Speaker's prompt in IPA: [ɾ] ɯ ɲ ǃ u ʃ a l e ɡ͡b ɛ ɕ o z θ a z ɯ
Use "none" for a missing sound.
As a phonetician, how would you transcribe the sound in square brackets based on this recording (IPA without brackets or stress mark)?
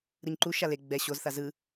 ɾ